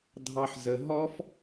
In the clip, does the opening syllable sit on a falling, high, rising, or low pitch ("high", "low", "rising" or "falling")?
high